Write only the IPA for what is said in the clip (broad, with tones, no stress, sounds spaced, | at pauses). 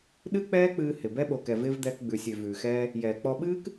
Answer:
ɗ ɨ˦ k͡p ɛː˦ k͡p ɨː˧ h ɪ˨ b ɛ˦ ɓ o˨ k ɛ˨ v ɪː˧ v d̪ ɛː˧ k ɡ͡b ʉ˨ sʲ ø˨ v ʉː˨ x ɛː˧ | j ɛː˨ k͡p ɔ˧ ɓ ɨː˦ k